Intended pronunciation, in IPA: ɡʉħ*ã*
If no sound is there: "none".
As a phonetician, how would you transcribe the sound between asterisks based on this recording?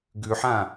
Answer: ã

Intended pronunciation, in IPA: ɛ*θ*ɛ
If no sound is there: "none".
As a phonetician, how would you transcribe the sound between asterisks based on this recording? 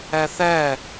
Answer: θ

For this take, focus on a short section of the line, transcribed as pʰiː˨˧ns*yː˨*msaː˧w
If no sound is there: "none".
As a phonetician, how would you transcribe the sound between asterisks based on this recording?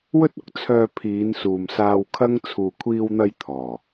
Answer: uː˨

